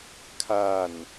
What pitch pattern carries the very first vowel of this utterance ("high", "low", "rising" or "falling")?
falling